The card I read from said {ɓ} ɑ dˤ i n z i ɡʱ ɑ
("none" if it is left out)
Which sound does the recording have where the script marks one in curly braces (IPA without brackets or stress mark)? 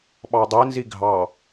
ɓ